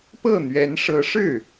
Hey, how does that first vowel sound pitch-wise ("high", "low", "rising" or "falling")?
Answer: falling